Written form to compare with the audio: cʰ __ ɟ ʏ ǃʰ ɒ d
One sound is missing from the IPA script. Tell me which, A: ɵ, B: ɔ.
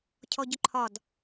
B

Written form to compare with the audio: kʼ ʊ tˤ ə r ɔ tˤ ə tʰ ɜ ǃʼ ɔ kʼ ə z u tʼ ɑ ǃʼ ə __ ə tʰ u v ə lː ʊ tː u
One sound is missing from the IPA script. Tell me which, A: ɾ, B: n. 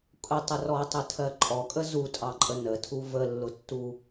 B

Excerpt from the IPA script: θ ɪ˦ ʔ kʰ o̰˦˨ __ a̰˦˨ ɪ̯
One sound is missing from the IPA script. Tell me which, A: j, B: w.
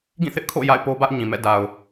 A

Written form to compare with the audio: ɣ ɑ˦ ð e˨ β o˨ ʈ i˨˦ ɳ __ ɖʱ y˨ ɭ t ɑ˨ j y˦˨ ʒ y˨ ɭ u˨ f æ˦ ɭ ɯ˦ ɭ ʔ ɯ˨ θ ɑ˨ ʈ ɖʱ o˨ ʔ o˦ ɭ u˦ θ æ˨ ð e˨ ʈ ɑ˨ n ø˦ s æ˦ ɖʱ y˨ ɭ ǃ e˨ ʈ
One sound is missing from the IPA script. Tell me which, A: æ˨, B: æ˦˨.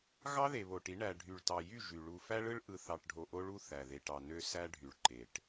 A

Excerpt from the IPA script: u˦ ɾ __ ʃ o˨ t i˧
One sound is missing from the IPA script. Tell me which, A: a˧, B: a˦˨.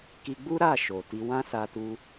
B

